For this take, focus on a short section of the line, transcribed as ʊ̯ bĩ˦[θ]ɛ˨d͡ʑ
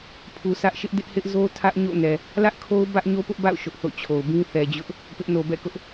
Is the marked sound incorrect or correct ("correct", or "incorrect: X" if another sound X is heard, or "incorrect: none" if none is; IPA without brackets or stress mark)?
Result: correct